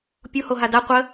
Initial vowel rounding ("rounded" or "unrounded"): rounded